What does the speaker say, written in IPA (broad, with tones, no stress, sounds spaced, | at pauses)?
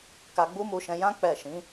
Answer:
k a˧ ɡ͡b u˦ m u˧ ʃ ɛ̃˧ j ã˦ k͡p ɛ˦˨ ʃ ĩ˨˦